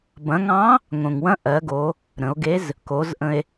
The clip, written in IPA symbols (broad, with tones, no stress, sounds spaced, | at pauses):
b ɐ̃˩˧ ŋ ɑ̃˧˥ | ŋ õ˩ ŋ w ɐ̃˧˥ ʔ ɜ˩˧ ɡ o˩˧ | ɾ ə̃˩˧ o̯ ɡ e˧˥ z | k o˩˧ z ʔ ə̃˧ e̯